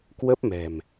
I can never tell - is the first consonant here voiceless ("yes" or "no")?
yes